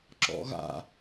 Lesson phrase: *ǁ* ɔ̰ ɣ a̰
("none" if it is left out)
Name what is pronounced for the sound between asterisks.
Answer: ǁ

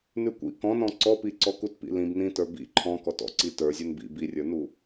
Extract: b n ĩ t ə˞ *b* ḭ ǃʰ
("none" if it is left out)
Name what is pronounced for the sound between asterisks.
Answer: b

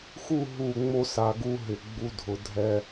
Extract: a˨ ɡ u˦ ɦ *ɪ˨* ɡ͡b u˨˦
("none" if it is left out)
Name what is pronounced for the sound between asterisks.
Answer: ɪ˨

